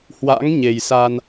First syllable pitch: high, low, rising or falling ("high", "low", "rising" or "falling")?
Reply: rising